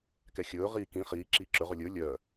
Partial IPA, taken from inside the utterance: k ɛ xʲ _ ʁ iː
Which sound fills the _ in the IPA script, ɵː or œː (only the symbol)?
ɵː